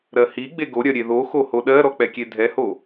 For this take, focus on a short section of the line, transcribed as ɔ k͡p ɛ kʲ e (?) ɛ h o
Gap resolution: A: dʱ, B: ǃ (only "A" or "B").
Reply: A